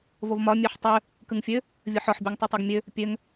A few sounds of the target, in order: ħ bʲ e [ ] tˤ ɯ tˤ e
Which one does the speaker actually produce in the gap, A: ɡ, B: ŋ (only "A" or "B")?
B